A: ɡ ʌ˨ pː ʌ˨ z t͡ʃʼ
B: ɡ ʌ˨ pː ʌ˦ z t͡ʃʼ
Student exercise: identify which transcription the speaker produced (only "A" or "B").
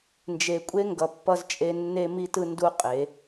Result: B